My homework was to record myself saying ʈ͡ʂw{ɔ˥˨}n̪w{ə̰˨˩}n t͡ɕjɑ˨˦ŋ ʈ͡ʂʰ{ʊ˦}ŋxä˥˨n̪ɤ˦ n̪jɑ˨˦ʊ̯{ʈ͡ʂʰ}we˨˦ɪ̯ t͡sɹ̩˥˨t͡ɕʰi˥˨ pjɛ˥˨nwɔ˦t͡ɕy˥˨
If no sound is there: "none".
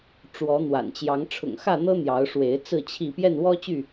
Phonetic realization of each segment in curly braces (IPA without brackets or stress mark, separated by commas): ɔ˨˦, a̰˨˩, ʊ̰˨˩, ʂ